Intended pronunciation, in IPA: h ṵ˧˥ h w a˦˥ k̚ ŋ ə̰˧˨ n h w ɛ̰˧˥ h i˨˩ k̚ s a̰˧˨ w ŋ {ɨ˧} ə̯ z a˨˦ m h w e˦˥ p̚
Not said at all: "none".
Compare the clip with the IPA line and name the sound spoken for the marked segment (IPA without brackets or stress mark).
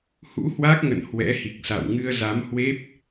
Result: ɨ˧